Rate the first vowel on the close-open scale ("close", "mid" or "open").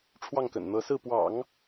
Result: open